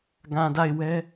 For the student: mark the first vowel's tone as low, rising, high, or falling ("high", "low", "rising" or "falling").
low